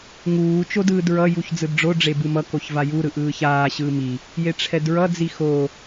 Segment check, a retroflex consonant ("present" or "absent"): present